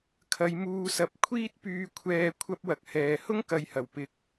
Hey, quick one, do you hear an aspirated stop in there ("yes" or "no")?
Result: yes